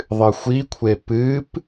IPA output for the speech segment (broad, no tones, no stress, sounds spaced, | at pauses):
ðˤ ɨ xʷ i kʷʰ e p ɨ p